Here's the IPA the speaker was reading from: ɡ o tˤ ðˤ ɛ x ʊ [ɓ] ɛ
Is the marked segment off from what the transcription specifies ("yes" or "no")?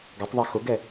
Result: yes